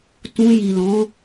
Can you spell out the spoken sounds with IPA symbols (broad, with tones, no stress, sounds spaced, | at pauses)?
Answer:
t ũ˧ j i˨ l ɔ̃˨˦